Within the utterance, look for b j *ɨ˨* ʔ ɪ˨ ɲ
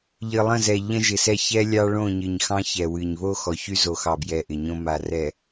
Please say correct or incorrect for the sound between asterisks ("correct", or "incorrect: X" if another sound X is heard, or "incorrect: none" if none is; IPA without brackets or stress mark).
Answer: incorrect: ɛ˨